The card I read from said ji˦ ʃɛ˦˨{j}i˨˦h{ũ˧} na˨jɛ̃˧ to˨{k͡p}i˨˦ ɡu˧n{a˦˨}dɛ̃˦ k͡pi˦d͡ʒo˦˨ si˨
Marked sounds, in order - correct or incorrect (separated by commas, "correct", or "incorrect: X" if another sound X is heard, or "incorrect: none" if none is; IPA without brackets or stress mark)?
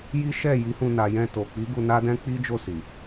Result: correct, correct, correct, incorrect: a˦